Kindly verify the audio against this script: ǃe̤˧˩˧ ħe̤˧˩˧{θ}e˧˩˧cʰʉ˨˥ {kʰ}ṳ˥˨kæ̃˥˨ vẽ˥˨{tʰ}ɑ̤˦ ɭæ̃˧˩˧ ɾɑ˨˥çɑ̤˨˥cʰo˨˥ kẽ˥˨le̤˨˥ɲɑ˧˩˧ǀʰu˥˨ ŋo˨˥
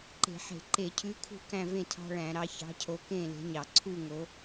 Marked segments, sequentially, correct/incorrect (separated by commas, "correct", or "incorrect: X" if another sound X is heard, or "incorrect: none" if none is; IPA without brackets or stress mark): incorrect: ǃ, correct, correct